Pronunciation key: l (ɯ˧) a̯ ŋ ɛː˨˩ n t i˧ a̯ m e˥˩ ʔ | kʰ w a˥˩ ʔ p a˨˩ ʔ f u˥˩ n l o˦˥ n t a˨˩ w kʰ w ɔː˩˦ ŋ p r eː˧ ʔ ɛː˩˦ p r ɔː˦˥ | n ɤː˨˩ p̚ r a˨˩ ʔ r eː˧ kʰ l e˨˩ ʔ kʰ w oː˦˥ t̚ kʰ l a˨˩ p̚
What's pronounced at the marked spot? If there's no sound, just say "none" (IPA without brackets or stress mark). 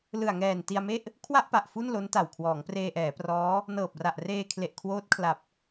ɯ˨˩